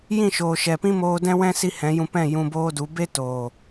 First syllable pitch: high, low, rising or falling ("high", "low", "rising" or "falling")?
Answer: falling